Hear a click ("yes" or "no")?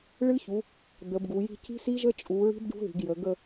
no